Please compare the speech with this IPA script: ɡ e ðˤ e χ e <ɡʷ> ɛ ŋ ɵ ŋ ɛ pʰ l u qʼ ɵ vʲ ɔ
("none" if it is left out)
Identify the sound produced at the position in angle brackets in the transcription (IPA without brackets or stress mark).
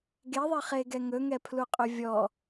ɡ